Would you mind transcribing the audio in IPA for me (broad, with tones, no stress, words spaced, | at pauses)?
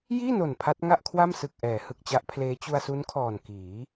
jiː˥˩no˨˩n pʰa˦˥t̚ŋa˥˩ʔ kʰwa˥˩msɯ˨˩k̚ʔɛː˩˦ hɯ˨˩k̚t͡ɕa˦˥ʔpʰleː˦˥ t͡ɕu˧a̯su˦˥nkʰɔː˨˩n kiː˩˦